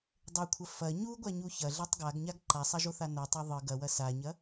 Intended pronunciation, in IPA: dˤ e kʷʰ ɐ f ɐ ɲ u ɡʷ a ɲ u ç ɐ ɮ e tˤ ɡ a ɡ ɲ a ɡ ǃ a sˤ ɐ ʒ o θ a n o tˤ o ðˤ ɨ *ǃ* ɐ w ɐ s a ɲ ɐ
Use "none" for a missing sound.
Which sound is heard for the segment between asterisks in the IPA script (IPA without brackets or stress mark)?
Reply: ɡ